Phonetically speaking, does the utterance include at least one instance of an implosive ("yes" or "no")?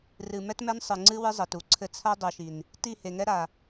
no